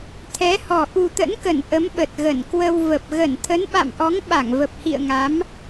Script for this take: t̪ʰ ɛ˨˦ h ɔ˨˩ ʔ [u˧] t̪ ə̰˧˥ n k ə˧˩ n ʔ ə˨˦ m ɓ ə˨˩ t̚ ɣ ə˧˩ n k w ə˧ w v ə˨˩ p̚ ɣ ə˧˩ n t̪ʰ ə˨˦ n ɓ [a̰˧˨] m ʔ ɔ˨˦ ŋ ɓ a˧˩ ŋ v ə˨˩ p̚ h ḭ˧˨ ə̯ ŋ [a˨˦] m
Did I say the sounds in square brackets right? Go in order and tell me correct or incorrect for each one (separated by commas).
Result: incorrect, correct, correct